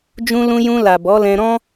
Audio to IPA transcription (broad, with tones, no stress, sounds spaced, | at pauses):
d͡ʒ ũ˧ l ũ˧ j ũ˧ l a˨ b ɔ˨˦ l ɛ̃˧ ɾ ɔ̃˦